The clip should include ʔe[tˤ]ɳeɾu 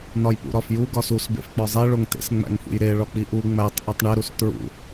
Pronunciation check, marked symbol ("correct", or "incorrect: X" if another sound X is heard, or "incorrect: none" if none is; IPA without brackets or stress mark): correct